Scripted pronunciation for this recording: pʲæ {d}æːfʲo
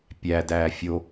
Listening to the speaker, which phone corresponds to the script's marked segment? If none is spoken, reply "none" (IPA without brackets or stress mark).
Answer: d